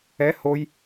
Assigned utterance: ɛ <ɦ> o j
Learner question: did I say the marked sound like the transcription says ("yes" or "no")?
no